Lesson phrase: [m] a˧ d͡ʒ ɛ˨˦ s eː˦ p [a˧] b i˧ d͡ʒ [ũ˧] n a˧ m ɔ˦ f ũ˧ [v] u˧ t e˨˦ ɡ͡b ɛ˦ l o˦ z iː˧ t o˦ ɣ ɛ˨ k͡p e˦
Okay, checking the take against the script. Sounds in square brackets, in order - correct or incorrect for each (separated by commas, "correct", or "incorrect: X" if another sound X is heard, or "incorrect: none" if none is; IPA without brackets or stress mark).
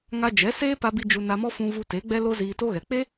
incorrect: ŋ, correct, incorrect: u˧, correct